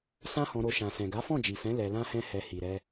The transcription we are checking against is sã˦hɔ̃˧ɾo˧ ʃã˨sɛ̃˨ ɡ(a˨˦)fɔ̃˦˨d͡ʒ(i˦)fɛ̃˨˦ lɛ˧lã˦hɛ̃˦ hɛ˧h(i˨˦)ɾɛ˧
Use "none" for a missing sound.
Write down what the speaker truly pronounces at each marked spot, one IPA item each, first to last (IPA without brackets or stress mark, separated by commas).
a˨˦, i˨, i˨